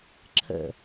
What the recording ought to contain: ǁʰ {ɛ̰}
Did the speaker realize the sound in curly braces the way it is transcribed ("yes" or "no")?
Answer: no